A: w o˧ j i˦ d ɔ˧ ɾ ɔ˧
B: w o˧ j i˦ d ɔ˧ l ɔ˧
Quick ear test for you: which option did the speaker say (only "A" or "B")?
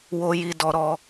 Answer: A